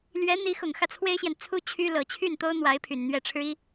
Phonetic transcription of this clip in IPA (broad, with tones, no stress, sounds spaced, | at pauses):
l ɥ ɛ˧˥ n̪ i˧˥ x ʊ˨˩ ŋ x ä˥˩ t͡sʰ w e˥ ɪ̯ ɕ j ɛ˨ n t͡sʰ u˥ t͡ɕʰ y˥ l ɤ˨˩ t͡ɕʰ y˥˩ n t̪ o˥ ʊ̯ n̪ w a˧˥ ɪ̯ pʰ y˨˩ n n̪ ɥ ɛ˥˩ ʈ͡ʂʰ ɻ̩˥ i˥